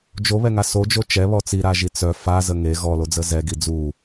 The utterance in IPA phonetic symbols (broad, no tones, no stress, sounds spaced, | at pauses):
d͡ʒ o β ɛ ŋ a s o d͡ʒ o t͡ʃ ɛ β ɔ t͡s i ɾ a ʒ i t͡s œ f a z ə ŋ e ɣ ɔ l o d͡z ə z ɛ ɡ i d͡z u